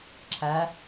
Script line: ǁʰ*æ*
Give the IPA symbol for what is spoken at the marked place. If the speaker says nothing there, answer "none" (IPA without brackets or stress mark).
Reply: æ